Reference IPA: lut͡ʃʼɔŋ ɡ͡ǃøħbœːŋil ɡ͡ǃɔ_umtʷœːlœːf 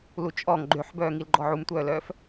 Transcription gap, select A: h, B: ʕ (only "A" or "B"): B